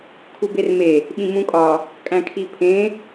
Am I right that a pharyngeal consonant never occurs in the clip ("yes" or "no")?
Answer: yes